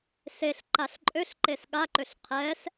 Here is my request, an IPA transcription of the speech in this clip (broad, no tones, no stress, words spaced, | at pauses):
seɬ ǃaɬǃʼøɬǃes ɠaǃøɬ qʰɛs